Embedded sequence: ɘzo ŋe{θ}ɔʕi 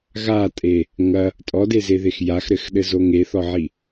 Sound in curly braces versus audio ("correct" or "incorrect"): correct